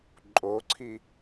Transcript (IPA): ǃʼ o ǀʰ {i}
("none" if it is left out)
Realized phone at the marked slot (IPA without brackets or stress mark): i